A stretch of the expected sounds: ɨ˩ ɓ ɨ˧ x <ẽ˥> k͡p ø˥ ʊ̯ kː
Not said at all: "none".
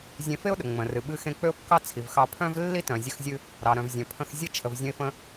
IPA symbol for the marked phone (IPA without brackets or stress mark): ẽ˧